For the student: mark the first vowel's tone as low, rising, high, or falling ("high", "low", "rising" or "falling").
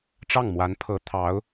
falling